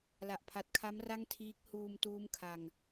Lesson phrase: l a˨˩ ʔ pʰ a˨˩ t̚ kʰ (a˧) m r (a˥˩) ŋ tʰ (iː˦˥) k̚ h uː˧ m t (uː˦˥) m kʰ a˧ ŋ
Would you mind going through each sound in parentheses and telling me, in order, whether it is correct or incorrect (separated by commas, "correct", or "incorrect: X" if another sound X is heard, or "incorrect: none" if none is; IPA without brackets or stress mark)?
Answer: incorrect: a˦˥, correct, correct, correct